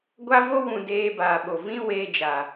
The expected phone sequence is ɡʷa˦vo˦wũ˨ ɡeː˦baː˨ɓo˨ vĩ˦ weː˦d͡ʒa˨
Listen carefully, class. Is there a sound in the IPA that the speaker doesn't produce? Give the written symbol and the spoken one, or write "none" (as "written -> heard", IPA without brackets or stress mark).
ɡ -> d